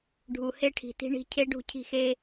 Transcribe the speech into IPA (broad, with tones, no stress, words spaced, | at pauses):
ɖʱu˨he˦ʈʰi̤˨ti̤˦ ɳi̤˧ cʰe˦ ɖṳ˦˨cʰi̤˦˨xeː˦